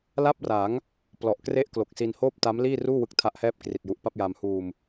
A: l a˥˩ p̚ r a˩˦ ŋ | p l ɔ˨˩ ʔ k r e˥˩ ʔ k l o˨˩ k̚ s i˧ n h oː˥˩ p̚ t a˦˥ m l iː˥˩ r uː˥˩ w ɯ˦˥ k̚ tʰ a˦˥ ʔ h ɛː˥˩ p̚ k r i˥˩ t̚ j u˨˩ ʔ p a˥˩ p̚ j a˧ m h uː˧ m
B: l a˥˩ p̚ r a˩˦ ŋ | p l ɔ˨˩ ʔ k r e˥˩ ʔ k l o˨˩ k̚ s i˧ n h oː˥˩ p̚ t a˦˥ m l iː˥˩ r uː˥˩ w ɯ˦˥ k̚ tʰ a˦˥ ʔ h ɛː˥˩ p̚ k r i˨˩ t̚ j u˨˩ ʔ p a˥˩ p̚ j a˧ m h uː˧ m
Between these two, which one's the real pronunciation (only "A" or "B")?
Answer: B